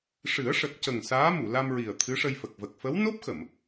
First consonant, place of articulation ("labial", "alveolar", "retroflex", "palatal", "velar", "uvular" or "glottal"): retroflex